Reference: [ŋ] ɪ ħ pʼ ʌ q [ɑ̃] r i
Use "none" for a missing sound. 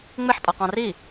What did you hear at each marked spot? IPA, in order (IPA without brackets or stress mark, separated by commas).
ŋ͡m, ɑ̃